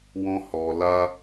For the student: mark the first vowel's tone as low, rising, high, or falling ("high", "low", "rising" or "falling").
high